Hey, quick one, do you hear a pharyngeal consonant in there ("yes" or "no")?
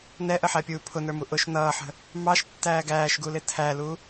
yes